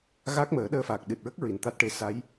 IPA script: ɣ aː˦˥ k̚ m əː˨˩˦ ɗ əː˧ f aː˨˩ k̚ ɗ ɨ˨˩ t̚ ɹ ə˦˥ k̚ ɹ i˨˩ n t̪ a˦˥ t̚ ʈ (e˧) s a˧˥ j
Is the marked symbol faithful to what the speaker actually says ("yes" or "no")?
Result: yes